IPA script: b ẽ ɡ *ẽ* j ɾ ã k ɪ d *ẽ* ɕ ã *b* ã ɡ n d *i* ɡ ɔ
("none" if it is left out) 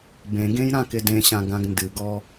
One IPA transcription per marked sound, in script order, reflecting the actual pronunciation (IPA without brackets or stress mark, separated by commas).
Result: ẽ, ẽ, ɡ, ɨ